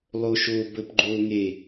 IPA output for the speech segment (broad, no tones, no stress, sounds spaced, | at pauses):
lˠ o ʃ o b ə p ɡ͡ǃ o ŋ e